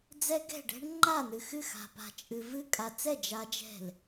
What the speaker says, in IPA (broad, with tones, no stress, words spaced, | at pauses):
d͡zɛ˦˥ɡɛ̤˥˩ɖɛ̤˦˥ɳ ŋ͡ǃa˥˩n̪ɨ˨xɨ˥˩ xa̤˨ pa̤˨t͡ʃʼɨ˨vɨ˦˥ kʼa˨t͡sɛ˥˩ d͡ʒa˦˥d͡ʒɛ̤˥˩l